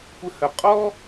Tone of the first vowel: high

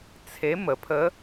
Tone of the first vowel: rising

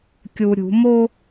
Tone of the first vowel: low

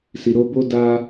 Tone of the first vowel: low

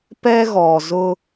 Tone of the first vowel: high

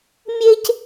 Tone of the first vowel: high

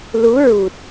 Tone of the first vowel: rising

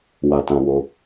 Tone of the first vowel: low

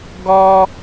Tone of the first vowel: high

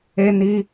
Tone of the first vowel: high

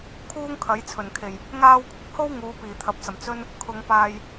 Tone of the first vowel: high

